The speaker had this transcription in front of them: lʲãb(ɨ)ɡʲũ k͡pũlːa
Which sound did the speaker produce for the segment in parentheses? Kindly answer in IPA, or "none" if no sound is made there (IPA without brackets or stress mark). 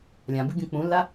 ɨ